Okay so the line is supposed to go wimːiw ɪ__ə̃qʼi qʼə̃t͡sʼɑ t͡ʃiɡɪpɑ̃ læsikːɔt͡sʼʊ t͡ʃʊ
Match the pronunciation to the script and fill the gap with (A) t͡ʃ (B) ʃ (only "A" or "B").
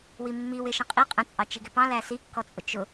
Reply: B